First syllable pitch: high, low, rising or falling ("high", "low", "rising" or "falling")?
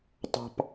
high